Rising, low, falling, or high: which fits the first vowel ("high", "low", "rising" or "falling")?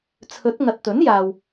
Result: rising